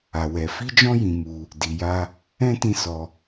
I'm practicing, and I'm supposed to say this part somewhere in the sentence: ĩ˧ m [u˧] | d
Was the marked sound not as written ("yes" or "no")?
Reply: no